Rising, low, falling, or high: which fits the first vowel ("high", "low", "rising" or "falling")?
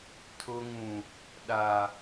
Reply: low